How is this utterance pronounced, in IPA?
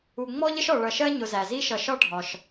u˩ŋ͡mɔ˦ʎə˦ʃɔ˩ ɭʌ˨ʃɜ˦ ɲʊ˨zæ˩zi˥ʃʌ˨ ʃɒ˥ ɖʱɒ˨ʃ

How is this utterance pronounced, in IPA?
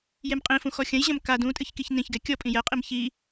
jemqʼĩfũ xɔxʲɐ̃j ʑɐ̃mka dũtʼɨçkiç nĩçɡɛ kʲɔpʼĩ jɛqʼim çi

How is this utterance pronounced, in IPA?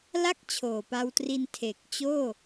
la˥˩k̚ t͡ɕʰoː˨˩pa˧wtri˧n tʰe˨˩k̚t͡ɕoː˥˩

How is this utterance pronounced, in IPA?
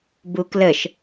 bukləʃ

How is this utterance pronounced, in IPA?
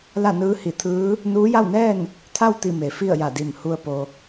la˥˨nɯː˧˥hi˧˩t̪ʰɯː˧˥ | nuː˧˥ja˥˨wnɛː˥˨n | t̪ʰa˥˨wt̪i˧˩ me˩˧fi˥˨ə̯ja˧˩di˧˩m hu˧ə̯ po˩

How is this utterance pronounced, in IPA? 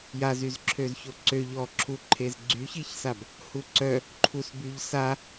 jazyz ǁʰøzçoǀøʎ ɔǁʰuǃʰez ɡ͡ǀyçiçsab | huǀœ | ǃʰusbyʎsa

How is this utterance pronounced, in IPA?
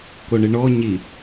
koɳɨɳɔ ɲi

